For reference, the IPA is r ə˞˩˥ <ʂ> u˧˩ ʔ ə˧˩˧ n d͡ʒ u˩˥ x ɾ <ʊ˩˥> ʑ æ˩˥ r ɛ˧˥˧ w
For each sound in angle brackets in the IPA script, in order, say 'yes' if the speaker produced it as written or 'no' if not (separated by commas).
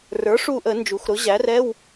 yes, yes